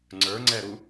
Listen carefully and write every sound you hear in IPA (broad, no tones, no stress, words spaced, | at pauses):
ŋ͡ǀə˞ŋ͡ǀɛɾu